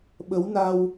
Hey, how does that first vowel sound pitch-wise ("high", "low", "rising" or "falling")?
rising